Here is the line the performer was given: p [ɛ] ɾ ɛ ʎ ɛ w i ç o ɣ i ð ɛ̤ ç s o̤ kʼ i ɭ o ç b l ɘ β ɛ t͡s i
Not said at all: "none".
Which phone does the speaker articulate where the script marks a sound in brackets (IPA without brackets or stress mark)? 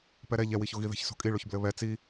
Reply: ɛ